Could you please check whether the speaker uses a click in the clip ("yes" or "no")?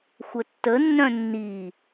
no